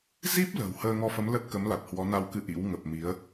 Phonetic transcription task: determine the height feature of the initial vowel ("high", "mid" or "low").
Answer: high